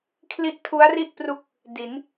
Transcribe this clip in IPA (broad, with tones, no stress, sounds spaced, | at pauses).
kʰ l i˥˩ ʔ tʰ u˦˥ a̯ r i˥˩ ʔ p r u˦˥ k̚ | d i˩˦ n